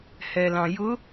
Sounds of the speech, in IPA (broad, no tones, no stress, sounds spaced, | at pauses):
h ɛ l ɑ̃ j ʊ